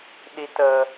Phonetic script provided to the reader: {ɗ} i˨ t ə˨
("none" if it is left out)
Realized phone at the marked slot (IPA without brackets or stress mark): ɗ